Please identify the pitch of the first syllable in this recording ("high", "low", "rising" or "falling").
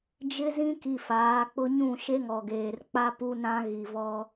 high